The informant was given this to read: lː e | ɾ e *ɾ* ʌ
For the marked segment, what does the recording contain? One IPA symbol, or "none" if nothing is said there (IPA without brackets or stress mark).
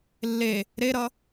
ɾ